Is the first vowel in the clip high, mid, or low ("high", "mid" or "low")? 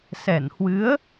mid